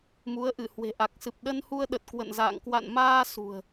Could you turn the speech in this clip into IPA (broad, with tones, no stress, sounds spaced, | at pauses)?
m u˨˦ ə̯ ʔ ɨ˧˩ h w e̤˨˩ ʔ a˨˩ k̚ s ɨ˨˩ p̚ ɗ ə˧ n h u˧ ə̯ ɗ ə˨˩ t̚ k w ə̰˧˨ n z a̰ː˧˨ ŋ k w a̰˧˨ n m aː˧ s ṳ˨˩ ə̯